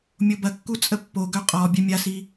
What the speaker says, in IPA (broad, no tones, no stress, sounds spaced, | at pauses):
mʲ o b ɐ kː u t͡sʼ ə pː o ɡ œ qʼ ɔ bʲ œ mʲ a s i